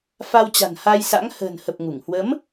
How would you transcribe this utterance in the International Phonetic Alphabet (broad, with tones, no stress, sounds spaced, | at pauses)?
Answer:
f a˧ w t͡ɕ a̤˨˩ n h a˧ j s a̰˧˥ ŋ h ə̤ː˨˩ n h ə˨˩ p̚ ŋ u˧˩ ŋ h w ə˨˦ m